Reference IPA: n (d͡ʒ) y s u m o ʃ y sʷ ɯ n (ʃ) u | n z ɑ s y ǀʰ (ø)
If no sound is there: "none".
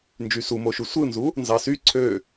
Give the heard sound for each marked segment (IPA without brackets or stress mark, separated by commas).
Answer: d͡ʒ, z, ø